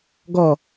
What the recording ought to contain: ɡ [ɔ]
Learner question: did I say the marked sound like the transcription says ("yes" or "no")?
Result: yes